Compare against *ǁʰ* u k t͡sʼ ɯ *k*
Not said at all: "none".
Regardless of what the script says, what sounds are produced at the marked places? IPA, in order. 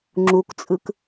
ŋ͡ǁ, k

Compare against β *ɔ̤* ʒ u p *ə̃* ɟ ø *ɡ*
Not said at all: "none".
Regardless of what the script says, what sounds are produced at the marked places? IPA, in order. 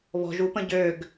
ɔ̤, ə̃, ɡ

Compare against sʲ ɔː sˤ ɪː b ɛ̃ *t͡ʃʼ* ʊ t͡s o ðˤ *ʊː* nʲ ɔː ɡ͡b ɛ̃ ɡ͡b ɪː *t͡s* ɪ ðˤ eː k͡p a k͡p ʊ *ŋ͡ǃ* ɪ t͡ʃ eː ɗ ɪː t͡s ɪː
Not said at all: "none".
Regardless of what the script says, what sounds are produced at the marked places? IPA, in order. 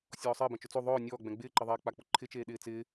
t͡ʃ, ʊː, ǃ, ǃʰ

